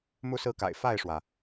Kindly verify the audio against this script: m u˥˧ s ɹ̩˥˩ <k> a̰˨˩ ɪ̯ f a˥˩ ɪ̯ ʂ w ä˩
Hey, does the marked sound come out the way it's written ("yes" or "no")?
yes